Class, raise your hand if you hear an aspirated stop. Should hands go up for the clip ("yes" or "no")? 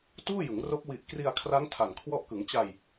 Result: yes